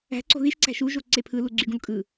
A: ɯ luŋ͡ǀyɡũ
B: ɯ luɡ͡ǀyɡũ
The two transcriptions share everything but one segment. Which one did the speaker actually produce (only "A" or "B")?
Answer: B